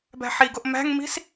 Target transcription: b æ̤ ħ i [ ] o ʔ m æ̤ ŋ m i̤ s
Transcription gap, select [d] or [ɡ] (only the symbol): ɡ